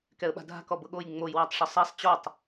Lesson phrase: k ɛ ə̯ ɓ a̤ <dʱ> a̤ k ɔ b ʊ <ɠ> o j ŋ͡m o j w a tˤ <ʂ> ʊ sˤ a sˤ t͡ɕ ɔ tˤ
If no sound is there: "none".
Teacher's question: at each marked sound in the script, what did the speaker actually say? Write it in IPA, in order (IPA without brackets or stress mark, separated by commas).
dʱ, ɠ, ʂ